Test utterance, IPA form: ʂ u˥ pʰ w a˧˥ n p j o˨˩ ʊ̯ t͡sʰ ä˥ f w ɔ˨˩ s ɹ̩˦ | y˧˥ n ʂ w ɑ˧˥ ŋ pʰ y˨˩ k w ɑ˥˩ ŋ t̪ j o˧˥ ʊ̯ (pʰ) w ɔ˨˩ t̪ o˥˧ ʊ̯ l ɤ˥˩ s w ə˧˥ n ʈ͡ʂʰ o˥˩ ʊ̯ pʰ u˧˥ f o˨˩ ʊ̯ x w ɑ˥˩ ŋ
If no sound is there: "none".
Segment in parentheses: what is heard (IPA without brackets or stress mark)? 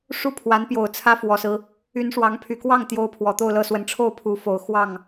pʰ